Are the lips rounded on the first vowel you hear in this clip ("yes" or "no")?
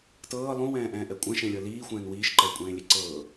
no